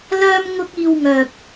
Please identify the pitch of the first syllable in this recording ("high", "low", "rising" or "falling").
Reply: high